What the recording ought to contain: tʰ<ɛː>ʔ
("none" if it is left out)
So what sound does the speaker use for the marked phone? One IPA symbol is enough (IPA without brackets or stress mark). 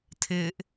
ɪː